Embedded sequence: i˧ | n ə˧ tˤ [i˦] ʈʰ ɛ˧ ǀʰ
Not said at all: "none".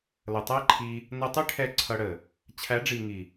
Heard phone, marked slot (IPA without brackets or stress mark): i˦